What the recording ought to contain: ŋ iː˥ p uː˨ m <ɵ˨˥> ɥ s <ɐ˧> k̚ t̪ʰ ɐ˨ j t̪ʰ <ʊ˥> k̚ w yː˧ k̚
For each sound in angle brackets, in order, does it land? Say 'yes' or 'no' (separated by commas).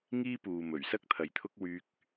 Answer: no, no, yes